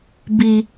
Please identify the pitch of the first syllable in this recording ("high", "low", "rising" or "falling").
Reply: high